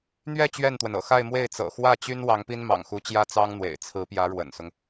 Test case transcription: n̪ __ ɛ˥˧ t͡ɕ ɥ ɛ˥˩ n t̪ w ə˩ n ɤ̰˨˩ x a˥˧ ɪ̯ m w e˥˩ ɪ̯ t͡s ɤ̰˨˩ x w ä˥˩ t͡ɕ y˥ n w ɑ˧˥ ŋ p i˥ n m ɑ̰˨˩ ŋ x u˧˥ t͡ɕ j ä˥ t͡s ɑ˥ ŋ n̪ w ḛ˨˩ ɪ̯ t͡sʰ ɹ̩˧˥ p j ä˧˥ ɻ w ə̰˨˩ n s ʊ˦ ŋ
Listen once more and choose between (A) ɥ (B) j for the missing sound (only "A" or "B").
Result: A